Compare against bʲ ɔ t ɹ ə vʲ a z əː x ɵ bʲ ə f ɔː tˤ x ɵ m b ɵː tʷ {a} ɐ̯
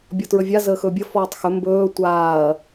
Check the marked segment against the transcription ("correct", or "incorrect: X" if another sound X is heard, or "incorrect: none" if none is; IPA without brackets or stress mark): incorrect: aː